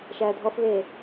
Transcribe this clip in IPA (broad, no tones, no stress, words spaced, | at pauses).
ʃæːdʱɔfβeː